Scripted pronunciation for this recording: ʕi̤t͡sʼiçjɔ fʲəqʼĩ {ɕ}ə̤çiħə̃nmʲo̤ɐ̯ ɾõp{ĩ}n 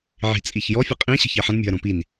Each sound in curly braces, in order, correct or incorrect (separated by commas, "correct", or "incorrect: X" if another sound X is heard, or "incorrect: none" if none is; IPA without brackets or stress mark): correct, incorrect: i